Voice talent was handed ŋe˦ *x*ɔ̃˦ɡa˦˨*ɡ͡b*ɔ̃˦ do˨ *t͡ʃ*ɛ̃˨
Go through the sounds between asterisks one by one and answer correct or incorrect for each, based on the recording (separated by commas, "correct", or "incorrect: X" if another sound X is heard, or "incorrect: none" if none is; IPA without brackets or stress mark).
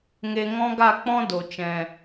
incorrect: ŋ, incorrect: k͡p, correct